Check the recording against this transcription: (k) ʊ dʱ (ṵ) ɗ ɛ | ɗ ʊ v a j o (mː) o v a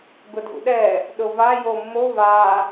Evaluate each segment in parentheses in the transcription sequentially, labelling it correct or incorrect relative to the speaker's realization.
incorrect: ɡ, correct, correct

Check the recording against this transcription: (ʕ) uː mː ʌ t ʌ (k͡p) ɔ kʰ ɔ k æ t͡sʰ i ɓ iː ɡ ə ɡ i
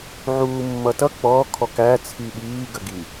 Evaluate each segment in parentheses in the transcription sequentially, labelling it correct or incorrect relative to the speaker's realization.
correct, correct

